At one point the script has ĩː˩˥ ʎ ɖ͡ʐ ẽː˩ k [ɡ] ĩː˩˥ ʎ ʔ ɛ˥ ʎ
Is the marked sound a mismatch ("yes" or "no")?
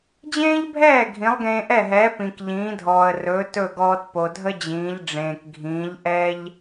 yes